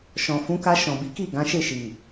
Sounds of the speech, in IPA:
ʃ ɔ̃˨ f ũ˨˦ k a˧ ʃ ɔ̃˨ b i˨˦ k i˦˨ ɡ ã˨˦ ʃ e˦˨ ʃ i˨

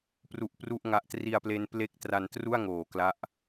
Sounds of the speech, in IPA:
p r u˦˥ ʔ p r u˥˩ ʔ ŋ a˦˥ ʔ t r i˧ a̯ p l e˧ n p l e˦˥ k̚ t r a˧ n t r u˥˩ a̯ ŋ oː˨˩ k l a˦˥ ʔ

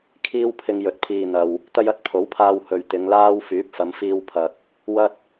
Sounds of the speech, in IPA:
kʰ iː˥ w pʰ ɪ˧ ŋ j ɵ˨˥ t̚ pʰ iː˨ n̪ ɐ˨ w | t̪ ɐ˥ j ɐ˥ t̚ pʰ o˨˥ w pʰ aː˧ w h ɵ˨ ɥ t̪ ɪ˨˧ ŋ l aː˥ w f yː˨˥ p̚ f ɐ˨˧ m f iː˧ w pʰ ɐ˨ k̚ | w ɐ˥ t̚

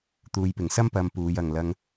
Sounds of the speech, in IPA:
t̪ uː˨˧ j p ɪ˨˩ ŋ s ɐ˥ m p ɐ˧ m p uː˨˧ j ɐ˨ ŋ l ɐ˧ ŋ

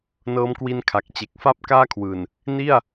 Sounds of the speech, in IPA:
n ɤː˦˥ m k w i˧ n kʰ a˨˩ k̚ t͡ɕ e˨˩ k̚ f a˥˩ p̚ k aː˥˩ kʰ w ɯː˨˩ n | n i˥˩ a̯

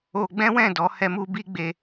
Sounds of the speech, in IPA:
o˧ ɡ͡b ɛ̃˦ w ɛ̃˦˨ d ɔ˨˦ h ɛ˧ m u˧ b i˦ ɡ͡b e˧

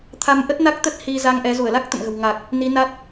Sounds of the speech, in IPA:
t̪ʰ a˧ m ʔ ə˦˥ t̚ n a˦˥ k̚ t̪ ə˦˥ t̚ h i˧ z a˧ ŋ ʔ ɛ˨˦ z u˧˩ ə̯ l a˦˥ k̚ t̪ ə̰˧˨ m ɣ ə̤˨˩ w ŋ a˨˩ k̚ | n i˨˦ n a˦˥ t̚

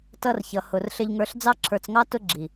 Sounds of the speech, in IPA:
t ʌ˧ r ç ʌ˨ h ʊ˨ r ɬ ɪ˧ ʎ ŋ ə˞˧ ɬ d͡z ɑ˧ ǁʰ ə˞˨ t͡s ŋ ɑ˧ t ʊ˧ ɡ͡ǁ i˨

